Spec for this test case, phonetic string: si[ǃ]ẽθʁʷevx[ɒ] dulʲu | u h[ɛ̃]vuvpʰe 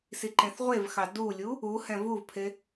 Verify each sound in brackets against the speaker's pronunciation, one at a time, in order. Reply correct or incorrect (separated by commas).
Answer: correct, incorrect, correct